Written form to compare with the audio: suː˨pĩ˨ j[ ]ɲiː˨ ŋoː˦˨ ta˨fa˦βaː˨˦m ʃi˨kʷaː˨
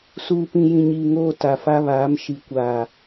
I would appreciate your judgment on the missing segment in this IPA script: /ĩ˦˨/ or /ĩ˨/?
ĩ˨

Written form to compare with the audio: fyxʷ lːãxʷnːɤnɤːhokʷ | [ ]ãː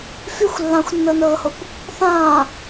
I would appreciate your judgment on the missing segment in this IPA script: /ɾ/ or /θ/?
θ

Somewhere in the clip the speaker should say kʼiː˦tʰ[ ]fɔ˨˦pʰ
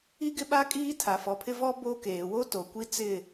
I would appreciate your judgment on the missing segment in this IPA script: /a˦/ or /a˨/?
a˨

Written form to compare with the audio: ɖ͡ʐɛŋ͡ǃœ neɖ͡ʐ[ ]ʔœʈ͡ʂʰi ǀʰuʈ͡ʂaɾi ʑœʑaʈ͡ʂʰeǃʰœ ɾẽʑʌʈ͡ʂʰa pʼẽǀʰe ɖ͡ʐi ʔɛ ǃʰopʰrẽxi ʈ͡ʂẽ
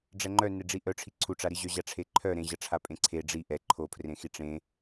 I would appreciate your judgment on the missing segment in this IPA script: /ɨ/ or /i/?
i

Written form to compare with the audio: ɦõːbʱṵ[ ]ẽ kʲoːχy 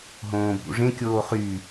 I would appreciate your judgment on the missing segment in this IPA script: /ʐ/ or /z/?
ʐ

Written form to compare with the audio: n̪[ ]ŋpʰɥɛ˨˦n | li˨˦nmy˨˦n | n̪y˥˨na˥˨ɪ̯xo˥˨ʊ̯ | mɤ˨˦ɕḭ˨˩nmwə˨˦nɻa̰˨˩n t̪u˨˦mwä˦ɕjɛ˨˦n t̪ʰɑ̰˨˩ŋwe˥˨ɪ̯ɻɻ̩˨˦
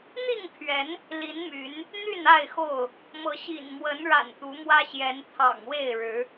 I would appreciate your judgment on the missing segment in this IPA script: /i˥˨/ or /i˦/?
i˥˨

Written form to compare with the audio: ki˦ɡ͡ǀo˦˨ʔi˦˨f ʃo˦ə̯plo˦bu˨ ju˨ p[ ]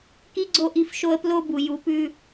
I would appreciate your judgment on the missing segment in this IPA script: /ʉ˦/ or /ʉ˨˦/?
ʉ˦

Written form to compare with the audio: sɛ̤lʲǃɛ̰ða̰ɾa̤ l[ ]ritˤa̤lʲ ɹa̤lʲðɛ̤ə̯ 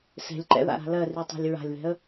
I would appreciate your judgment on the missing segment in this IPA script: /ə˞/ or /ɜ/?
ɜ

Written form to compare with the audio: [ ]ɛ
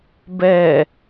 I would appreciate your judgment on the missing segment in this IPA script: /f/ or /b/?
b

